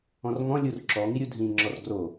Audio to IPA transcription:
ɔ̃ r ŋ ɔ̃ lʲ u r ǁ ɔ ŋ i ɾʲ u dʱ ĩ ŋ͡ǁ ɔ r ɡ r o

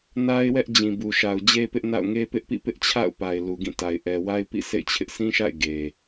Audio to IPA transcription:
n a˦ ɪ̯ w ɛ˦ ʔ d͡ʑ ĩ˨ b u˨ ʃ a˨ ʊ̯ d͡ʑ e˦ p ɪ˦ ʔ n a̰˦˨ ʊ̯ ŋ e˦ p ɪ˦ ʔ p ḭ˦˨ p ɪ˦ ʔ t͡ɕʰ a̰˦˨ ʊ̯ p a˨ ɪ̯ l u˨ ɡ ĩ˦˨ t a˨ ɪ̯ ʔ ɛ˨ w a˦ ɪ̯ p ḭ˦˨ s ḛ˦˨ ɪ̯ t͡ɕʰ ɪ˦ ʔ s ĩ˦ ʃ a̰˦˨ ɪ̯ ɡ e˨

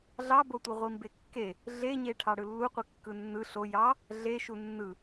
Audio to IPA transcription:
ɮ ɑ b o tʷ i ʁʷ i m b e kː e | ɮ e ɲ e ʈʰ ɑ ɽ ɯ lː u qʷ i kː ɯ nː ɯ ɬ o j ɑ | ɮ e ʃ u nː ɯ

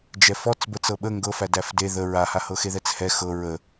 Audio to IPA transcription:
d͡ʒ ɛ f ɔ t͡s b ə t͡s ɤ ɓ ə ŋ ɡ ɤ f æ d æ f d e ð ə ɹ a h a h ɤ x e ð ɛ t͡s h ɛ x ɤ ɹ ə

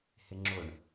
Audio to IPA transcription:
h ɪ ŋ͡ǁ ʊ ɳ

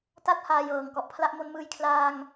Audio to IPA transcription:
t a˥˩ t̚ h aː˧ j ɤː˨˩ ŋ k ɔ˨˩ ʔ pʰ l a˦˥ ʔ m o˦˥ n m ɯː˧ j kʰ l aː˧ ŋ

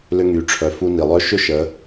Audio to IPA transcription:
l ʏ˧ ŋ y˩ ʈ͡ʂʰ œ˩ f u˧ n i˩ lˠ œ˧˥ ʃ ʏ˥ ʃ ə˩˧

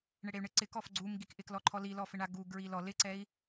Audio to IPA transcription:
ɳ e ɽ e y̯ ɳ ɪ ǀ ɪ k ɔ f ɡ͡ǀ u m ɡ i k ʔ ɪ k l ɔ ǃʰ ɔ l i l ɔ f ɪ ɳ a ɡ u ɡ ɹ i l ɔ l ɪ ǀ ɛ i̯

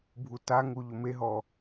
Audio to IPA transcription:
bʱ u t a ŋ u ʎ ʊ m e ɦ ɔ

